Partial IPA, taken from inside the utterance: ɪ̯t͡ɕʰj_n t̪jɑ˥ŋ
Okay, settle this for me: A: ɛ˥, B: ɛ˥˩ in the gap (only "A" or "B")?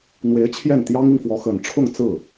B